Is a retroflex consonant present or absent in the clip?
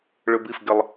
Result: present